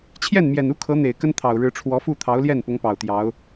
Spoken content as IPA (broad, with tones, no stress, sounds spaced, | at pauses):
t͡ɕʰ j ɛ˥˩ n m j ɛ˨˩ n u˥ kʰ ɤ˧˥ n̪ e˨˩ ɪ̯ k ə˥ n t̪ʰ ɑ˨˩ ʊ̯ ɻ ɻ̩˧˥ ʈ͡ʂʰ w ɔ˧˥ f u˥˩ t̪ʰ ɑ˧˥ ʊ̯ l j ɛ˥˩ n p ʊ˧˥ ŋ p ɑ˨˩ ʊ̯ t̪ j ɑ˧˥ ʊ̯